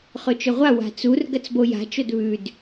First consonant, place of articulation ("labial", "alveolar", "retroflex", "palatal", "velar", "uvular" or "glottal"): uvular